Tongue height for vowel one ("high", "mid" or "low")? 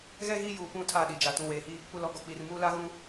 mid